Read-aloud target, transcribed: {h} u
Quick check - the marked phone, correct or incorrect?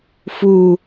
incorrect